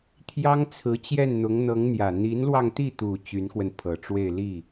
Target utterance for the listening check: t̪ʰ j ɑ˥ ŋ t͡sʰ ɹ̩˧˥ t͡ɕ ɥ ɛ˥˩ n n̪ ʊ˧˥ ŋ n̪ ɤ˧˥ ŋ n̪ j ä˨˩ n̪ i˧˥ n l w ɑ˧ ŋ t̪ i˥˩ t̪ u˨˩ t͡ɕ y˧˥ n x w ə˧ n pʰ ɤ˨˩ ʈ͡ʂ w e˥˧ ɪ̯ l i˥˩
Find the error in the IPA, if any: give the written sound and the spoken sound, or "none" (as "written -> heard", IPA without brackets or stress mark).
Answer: ɥ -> j